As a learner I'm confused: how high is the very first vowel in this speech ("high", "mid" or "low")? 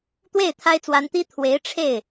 mid